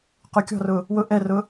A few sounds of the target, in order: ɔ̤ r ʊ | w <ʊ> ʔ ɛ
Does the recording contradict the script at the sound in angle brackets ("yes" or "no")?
no